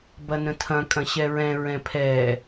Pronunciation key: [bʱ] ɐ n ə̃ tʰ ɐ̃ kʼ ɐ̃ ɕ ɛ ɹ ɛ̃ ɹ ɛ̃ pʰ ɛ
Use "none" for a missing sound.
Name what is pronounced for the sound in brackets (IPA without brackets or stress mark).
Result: b